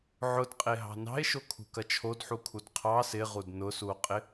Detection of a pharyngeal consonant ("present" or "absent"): present